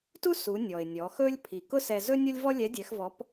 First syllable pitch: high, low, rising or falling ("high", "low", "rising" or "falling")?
high